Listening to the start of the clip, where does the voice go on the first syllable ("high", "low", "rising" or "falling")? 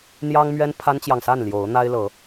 high